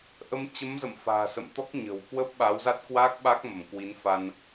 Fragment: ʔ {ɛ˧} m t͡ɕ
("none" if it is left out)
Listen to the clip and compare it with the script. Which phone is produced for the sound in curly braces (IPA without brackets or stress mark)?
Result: ə˧